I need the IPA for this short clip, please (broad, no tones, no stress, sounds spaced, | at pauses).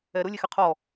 ɛ ɾ ʊ lʲ e x ɪ qʰ ɔ